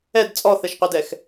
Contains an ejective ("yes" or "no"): yes